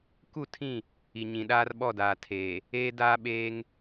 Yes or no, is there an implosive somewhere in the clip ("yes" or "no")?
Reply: yes